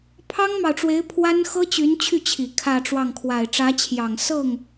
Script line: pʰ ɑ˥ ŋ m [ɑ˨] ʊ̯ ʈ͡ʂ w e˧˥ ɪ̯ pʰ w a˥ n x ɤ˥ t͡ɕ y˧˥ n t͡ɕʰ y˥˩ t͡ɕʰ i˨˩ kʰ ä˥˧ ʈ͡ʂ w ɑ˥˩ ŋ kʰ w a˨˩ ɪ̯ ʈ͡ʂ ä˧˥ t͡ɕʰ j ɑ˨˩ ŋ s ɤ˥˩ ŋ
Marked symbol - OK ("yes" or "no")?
yes